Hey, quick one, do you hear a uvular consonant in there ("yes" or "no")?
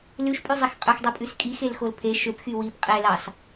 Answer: yes